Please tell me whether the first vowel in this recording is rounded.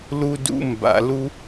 yes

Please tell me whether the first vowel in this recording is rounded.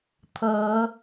no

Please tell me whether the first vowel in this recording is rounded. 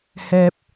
no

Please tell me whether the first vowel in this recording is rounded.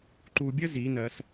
yes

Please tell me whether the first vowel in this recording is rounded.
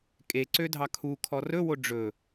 no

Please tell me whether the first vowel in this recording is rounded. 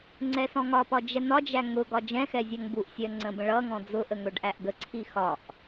no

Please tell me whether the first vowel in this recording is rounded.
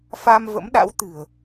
no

